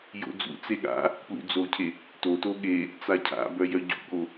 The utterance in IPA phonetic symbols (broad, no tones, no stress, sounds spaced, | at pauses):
j o̰ d͡z ṵ t͡s e ɠ a̰ | p l ṵ d͡z o cʰ e | t o t o ɠ e | t͡s a cʰ a̰ b œ j œ ɟ ṵ ɠ o